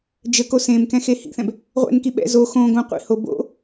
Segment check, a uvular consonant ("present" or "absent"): present